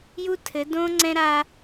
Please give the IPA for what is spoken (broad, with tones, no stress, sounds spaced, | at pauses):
j u˦ tʰ ɘ˨˦ d õ˦ ŋ͡ǀ ɛ̃˦ ɾ a˦